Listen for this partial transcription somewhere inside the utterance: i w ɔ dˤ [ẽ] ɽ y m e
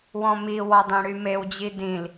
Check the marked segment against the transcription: correct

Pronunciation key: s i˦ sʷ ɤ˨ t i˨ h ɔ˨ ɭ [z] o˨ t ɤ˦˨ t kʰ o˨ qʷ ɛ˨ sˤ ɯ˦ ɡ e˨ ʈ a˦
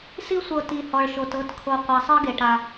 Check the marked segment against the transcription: incorrect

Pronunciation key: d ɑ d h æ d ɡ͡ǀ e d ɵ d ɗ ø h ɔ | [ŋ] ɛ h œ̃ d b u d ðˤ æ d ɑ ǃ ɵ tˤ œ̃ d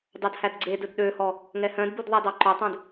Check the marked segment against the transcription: correct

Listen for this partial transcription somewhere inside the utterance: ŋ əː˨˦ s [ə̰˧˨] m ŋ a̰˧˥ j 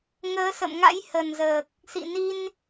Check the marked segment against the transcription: correct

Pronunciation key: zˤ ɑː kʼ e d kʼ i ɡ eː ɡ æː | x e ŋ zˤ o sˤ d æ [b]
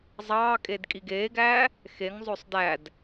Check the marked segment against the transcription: incorrect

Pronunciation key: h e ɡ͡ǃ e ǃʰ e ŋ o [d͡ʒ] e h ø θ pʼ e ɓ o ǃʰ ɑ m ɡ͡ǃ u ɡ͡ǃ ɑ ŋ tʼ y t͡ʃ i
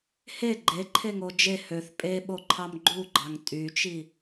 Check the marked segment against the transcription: correct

